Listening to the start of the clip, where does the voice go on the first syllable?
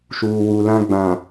low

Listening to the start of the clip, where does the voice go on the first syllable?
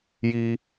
high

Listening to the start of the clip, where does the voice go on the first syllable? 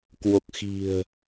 low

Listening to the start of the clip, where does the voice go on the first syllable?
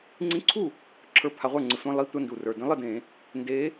rising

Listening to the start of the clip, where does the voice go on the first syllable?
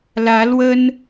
rising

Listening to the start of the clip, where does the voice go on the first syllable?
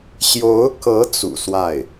rising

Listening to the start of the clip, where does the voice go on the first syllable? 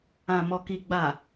low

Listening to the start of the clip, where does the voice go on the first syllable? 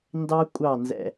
high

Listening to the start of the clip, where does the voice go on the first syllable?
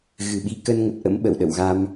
low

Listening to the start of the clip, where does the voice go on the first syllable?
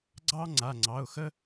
high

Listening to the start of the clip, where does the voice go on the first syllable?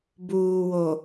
low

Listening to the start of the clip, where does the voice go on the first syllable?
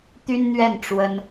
high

